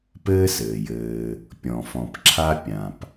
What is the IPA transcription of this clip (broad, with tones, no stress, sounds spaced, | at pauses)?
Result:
p ɘː˥ s ɘː˩ j ɘː˨ | pʲ ɔ̃˩ f ɔ̃˩ p ǁʰ a˦ pʲ ã˩ p